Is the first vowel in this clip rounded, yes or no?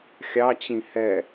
no